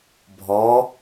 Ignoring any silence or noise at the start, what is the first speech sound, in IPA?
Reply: bʱ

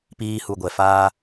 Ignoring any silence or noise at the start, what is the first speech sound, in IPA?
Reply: p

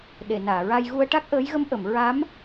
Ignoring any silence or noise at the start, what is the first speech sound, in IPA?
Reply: ɗ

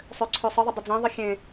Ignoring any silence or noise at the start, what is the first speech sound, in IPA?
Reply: sˤ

